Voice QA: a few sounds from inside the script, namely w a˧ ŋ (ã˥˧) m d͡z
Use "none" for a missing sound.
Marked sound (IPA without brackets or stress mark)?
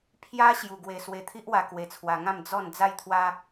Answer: ã˥˧